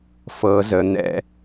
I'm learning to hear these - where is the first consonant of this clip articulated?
lips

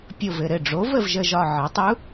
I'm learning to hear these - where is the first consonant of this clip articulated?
lips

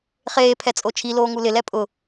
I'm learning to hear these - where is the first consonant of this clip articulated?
uvula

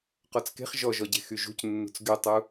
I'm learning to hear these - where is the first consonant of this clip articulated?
uvula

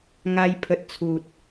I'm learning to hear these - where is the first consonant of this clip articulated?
velum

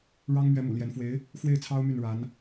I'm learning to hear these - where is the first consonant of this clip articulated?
retroflex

